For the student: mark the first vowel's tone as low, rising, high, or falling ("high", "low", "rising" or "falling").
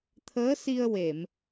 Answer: rising